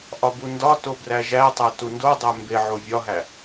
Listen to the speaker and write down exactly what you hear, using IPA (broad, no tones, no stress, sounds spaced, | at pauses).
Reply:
ʔ ɒ b u n d ɒ t o b r æ ʒ æ tˤ æ t u n d o dˤ æ m b e ʕ o vʲ ɒ ɦ æ